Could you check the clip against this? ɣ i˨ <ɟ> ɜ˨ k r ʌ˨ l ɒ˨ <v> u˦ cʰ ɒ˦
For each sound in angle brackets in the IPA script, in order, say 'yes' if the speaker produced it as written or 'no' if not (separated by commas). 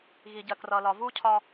yes, yes